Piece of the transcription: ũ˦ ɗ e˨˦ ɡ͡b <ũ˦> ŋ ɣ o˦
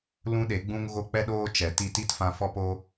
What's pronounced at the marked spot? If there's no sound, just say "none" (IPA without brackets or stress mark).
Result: ũ˦